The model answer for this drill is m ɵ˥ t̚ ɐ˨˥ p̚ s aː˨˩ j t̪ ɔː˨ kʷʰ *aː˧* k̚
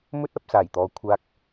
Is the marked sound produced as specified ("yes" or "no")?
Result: yes